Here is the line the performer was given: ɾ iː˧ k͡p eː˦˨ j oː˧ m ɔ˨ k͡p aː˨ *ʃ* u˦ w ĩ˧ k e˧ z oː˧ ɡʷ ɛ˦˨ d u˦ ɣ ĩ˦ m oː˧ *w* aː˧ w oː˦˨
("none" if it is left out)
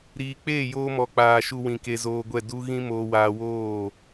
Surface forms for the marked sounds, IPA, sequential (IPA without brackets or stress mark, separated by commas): ʃ, w